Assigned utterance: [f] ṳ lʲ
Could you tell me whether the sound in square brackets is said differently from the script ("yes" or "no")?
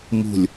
yes